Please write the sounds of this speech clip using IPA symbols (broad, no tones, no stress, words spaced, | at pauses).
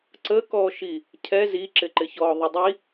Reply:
ǀəkɔːʃi | cʰɛ ziǁɪǃɪçɔː ðˤədˤi